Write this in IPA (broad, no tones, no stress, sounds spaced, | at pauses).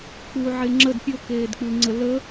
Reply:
k͡p u ʕ e ŋ͡ǁ ə d pʲ o k eː d k͡p ʉ ŋ͡ǀ ə l ə